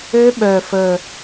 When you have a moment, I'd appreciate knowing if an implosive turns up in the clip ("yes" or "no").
yes